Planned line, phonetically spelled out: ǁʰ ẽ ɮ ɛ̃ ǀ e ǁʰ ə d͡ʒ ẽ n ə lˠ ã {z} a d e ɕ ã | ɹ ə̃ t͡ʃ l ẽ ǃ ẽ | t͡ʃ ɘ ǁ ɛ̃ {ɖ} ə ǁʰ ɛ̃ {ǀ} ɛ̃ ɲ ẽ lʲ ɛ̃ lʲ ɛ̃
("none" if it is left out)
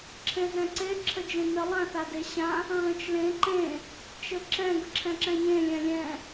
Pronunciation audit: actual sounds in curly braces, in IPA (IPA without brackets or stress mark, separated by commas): θ, ɡ, ǁ